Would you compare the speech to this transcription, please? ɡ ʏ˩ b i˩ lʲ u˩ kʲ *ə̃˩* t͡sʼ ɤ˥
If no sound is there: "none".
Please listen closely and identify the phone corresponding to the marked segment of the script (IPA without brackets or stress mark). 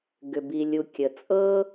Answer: ə˩